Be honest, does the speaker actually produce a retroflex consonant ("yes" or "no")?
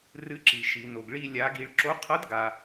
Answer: yes